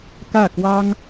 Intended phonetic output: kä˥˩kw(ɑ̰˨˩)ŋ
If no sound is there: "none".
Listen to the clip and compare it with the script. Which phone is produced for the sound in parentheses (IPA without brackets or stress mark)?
ɑ˥